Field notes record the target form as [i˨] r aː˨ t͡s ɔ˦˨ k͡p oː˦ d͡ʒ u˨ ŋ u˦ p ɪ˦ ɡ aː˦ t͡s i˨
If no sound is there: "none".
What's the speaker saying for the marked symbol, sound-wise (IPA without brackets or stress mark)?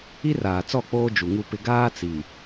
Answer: i˦